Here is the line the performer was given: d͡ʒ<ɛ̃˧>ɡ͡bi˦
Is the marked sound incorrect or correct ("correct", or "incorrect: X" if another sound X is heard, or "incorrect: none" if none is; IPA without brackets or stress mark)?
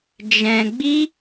correct